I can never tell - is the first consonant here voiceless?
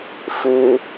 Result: yes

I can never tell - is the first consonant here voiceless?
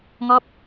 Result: no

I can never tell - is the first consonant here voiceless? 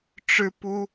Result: yes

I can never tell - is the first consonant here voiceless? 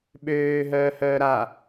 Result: no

